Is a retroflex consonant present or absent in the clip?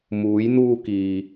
absent